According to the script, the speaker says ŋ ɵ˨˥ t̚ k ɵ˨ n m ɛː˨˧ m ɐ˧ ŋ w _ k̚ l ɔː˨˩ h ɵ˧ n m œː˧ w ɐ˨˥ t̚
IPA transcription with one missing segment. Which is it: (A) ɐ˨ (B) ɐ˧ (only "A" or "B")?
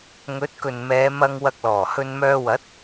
B